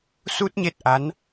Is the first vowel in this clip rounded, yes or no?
yes